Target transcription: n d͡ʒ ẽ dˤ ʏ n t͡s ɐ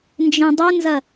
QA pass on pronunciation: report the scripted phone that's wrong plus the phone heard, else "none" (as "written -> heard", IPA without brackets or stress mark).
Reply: t͡s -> z